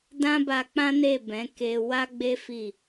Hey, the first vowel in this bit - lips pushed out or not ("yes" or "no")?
no